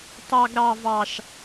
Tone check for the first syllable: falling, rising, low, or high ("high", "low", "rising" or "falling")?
high